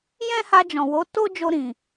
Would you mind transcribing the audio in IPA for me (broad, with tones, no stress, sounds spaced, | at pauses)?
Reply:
j ɛ̃˦ h a˧ d͡ʒ ɔ̃˨ w o˨˦ t o˦ d͡ʒ o˧ ɾ ĩ˨